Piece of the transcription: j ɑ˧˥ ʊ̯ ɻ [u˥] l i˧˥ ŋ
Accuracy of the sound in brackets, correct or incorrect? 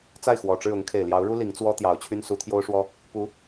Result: correct